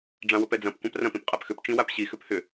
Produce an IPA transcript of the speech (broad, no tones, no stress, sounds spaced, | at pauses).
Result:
ɖ͡ʐ ã w ʊ p ɛ d͡z ɐ̃ p kʷ ã p r ɐ̃ p ĩ p qʼ a p x ʏ p t͡ʃ ĩ w a p ɕ i x ʏ p h ʏ